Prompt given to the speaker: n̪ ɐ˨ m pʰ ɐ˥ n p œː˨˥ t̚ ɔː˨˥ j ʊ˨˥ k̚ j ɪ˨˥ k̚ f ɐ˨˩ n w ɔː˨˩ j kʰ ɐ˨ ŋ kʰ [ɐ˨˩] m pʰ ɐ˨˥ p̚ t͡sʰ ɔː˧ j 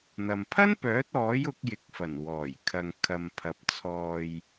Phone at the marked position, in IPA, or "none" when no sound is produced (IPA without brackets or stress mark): ɐ˨